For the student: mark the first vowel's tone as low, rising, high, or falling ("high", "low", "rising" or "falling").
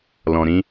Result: low